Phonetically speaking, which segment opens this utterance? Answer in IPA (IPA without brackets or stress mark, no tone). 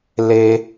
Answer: l